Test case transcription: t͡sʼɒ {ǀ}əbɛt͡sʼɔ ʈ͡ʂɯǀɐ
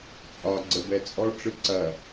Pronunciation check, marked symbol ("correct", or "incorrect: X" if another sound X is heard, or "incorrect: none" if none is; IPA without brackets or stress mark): incorrect: ɡ͡ǀ